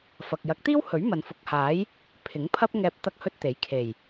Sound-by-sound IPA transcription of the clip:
f ɐ˨ k̚ j ɐ˨˥ k̚ t̪ iː˥ w h ɵ˨˥ ɥ m ɐ˨ n f ʊ˨˥ k̚ h aː˨˥ j | pʰ ɪ˨˥ ŋ pʰ ɐ˥ p̚ ŋ ɛː˧ p̚ t̪ ɐ˥ k̚ h ɵ˥ t̚ t̪ e˨˥ j kʰ e˨˩ j

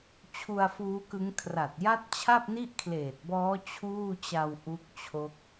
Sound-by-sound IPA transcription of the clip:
t͡ɕʰ u˧ a̯ f uː˦˥ k ɯ˦˥ ŋ kʰ r a˨˩ t̚ j a˥˩ t̚ t͡ɕʰ a˥˩ p̚ n i˥˩ ʔ kʰ l eː˨˩ t̚ b ɔː˦˥ t͡ɕʰ uː˥˩ t͡ɕ a˧ w ʔ u˦˥ k̚ t͡ɕʰ o˦˥ k̚

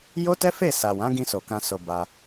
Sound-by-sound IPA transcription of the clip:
j o˦ t ɛ˦ f e˦˨ s a˨ w ã˨˦ ɡ ĩ˧ s o˨ k ã˧ s o˧ b a˧

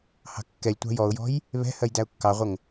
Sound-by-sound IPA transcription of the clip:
h ɑ̤ kː ɛ lʲ tʷ ɑ̤ j ɔ ʊ̯ j ɔ̤ j | β ɛ̤ h ɜ j d æ ʊ̯ kː ɑ ʁʷ ə ŋ

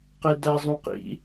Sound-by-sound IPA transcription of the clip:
q e d æ zˤ ũ q ḭ

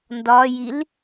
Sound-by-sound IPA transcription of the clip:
n d ɒ j i l

